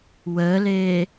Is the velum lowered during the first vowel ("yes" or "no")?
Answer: no